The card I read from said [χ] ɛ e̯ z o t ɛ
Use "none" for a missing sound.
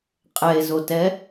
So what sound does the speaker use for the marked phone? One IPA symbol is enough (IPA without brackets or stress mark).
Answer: qʼ